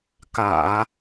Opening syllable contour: low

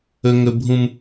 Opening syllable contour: high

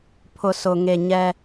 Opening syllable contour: low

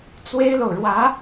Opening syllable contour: high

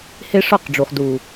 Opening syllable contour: high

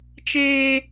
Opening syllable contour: high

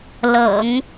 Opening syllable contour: low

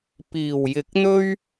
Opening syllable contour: low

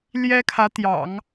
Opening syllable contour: high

